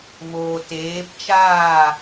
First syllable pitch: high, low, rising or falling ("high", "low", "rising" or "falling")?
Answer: low